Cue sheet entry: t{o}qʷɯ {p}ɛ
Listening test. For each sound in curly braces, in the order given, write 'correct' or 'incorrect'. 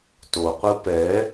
correct, correct

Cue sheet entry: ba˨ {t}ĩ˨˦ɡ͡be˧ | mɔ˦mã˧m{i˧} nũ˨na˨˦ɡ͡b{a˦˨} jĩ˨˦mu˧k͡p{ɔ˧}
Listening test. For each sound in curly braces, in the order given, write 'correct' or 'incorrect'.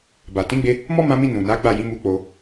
correct, incorrect, correct, incorrect

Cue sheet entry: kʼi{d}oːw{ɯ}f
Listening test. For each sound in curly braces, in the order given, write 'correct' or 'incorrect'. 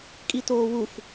incorrect, incorrect

